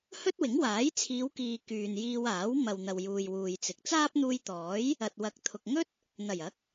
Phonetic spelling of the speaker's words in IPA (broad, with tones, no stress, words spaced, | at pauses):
hɵ˥t̚wɪ˨˥ŋwaː˨˥j t͡sʰiː˨˧wkiː˨ kyː˨n jiː˧waː˨˥w mɐ˨wn̪ɐ˨wjuː˨j wuː˨jt͡sɪ˨˥k̚ t͡saː˥p̚n̪uː˧jt̪ɔː˨˥j | ɐ˨t̚wɐ˨˥k̚ t̪ʰʊ˨k̚ ŋɵ˥t̚ | n̪ɐ˨˩jɐ˨˥k̚